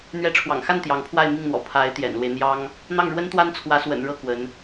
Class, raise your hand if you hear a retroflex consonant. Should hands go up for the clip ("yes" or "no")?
yes